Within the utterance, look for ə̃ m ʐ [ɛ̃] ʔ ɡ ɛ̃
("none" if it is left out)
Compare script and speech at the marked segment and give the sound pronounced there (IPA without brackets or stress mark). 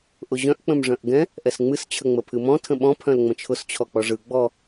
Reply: œ̃